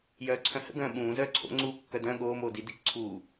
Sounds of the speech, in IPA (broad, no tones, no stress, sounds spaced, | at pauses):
j œː ǀʰ œ̃ h ə̰ ɡ œ̃ː ɓ ũː z œː ǀʰ o̰ ŋ͡ǀ uː kː œ d œ̃ ɠ oː m oː d i d i k ǀʰ u